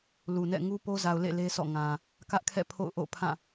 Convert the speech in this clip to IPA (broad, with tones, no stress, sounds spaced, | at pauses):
l u˨ n ɛ̰˦˨ ŋ u˦ p o˦ z a˨ ʊ̯ l ḛ˦˨ l e˦ s ɔ̰˦˨ ŋ ã˨ | k ä˦ ʔ kʰ ɛ̰˦˨ pʰ o̰˦˨ ʊ̯ ʔ o̰˦˨ pʰ ã˦˨